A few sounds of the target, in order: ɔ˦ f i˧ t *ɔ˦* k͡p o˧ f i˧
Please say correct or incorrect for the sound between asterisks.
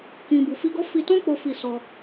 incorrect